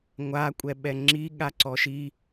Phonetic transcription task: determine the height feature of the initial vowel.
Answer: low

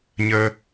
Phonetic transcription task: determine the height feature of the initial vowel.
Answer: mid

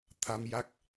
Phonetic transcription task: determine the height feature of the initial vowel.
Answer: low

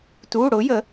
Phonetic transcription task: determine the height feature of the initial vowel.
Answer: high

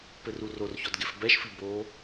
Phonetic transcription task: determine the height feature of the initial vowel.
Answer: mid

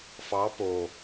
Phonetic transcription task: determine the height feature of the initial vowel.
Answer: low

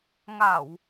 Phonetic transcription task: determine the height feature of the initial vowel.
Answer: low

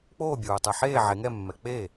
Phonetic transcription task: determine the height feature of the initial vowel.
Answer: mid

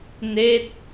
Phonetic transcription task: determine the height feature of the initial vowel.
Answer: mid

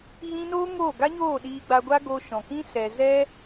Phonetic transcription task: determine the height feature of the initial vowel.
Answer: high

